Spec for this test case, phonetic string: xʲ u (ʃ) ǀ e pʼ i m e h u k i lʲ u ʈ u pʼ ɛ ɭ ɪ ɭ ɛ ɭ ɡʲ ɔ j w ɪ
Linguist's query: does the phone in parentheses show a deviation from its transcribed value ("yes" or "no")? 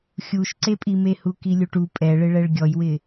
no